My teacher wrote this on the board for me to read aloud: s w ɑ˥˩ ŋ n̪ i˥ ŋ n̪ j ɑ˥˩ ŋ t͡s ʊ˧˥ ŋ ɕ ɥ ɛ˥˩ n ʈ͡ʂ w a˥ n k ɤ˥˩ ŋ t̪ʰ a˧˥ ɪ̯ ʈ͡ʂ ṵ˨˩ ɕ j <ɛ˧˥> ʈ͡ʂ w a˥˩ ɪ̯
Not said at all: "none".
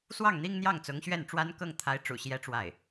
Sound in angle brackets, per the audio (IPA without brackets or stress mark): ɛ˧˥